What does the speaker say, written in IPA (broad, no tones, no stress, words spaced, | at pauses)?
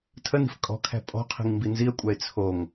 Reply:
tʰəni̤f kʼɔ̤kʰæ̤ pʼɔ̤qʰi̤ŋ mbinziə̯kʷʼæɪ̯ t͡sʰoŋ